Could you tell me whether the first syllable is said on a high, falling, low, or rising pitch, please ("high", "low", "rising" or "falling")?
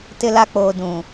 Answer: high